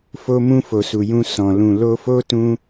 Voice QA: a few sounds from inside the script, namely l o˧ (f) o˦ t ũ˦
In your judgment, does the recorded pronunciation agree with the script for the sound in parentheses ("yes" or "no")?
yes